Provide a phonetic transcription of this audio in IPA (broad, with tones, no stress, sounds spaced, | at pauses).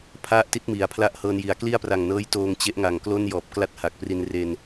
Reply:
pʰ a˦˥ ʔ t i˦˥ t̚ m i˩˦ a̯ pʰ l a˦˥ ʔ h ɤː˧ n j i˩˦ a̯ k l i˥˩ a̯ p r a˨˩ ŋ n ɤː˦˥ j t oː˧ ŋ t͡ɕ e˦˥ ʔ ŋ a˨˩ ŋ k l o˥˩ n j ɔː˨˩ p̚ k l a˥˩ t̚ h a˨˩ k̚ p r i˧ n r e˧ n